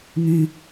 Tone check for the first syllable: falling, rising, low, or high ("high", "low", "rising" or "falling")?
high